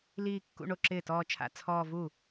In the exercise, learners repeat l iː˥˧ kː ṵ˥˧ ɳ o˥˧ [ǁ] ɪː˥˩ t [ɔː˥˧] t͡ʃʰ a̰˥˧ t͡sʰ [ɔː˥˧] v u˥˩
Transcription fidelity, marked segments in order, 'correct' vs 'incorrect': correct, correct, correct

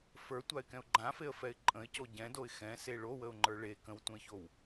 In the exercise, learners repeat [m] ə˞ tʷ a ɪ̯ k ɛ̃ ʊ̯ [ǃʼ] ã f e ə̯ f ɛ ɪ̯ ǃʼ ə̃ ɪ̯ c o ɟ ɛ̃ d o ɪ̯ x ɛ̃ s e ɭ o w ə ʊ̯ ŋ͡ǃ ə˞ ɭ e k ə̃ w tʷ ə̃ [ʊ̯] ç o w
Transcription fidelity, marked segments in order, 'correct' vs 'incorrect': incorrect, incorrect, incorrect

